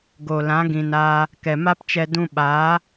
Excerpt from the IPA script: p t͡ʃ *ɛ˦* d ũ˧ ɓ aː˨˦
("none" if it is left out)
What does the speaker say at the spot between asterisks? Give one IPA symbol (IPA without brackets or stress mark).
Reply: ɛ˧